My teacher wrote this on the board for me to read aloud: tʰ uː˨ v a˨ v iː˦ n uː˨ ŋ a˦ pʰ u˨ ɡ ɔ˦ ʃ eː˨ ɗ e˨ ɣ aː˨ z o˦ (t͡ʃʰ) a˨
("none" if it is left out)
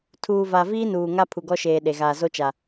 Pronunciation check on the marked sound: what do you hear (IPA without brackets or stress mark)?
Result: t͡ʃ